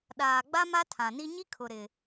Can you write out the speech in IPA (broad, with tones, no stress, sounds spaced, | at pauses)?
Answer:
ɗ aː˨ ɡ͡b a˦ m a˦ tʰ ã˨ n i˦ ɲ i˦ kʰ ʊ˨ ɾ ɪ˨